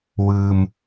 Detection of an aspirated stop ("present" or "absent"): absent